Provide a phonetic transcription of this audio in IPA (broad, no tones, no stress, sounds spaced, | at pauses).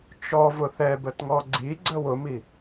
t͡ʃ ɔ v ʊ θ ɛ b ə t ŋ ɔ ɡ͡ǀ i ɡ͡ǀ ə w ʊ m i